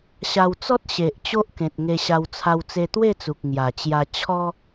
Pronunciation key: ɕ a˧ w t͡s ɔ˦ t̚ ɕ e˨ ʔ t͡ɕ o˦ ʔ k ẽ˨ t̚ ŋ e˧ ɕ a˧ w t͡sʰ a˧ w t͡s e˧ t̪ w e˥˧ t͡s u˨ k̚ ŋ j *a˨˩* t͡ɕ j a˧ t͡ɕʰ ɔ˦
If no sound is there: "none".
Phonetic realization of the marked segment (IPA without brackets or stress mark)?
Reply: a˨˩